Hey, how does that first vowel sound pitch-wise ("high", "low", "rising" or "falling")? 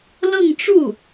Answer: falling